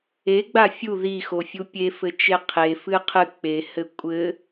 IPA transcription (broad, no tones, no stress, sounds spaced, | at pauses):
e ɡ͡b a fʲ u ð i x o fʲ u pʲ e f ɘ t͡ʃ e qʰ e f ɨ qʰ ɨ k͡p e h ɘ kʷʼ ɘ